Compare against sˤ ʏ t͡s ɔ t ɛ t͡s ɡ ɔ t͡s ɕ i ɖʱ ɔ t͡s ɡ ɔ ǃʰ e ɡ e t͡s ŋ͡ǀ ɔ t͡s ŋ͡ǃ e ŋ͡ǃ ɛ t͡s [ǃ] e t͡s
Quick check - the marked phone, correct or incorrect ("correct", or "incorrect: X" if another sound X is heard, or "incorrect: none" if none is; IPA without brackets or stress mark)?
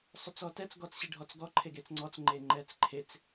incorrect: ǃʰ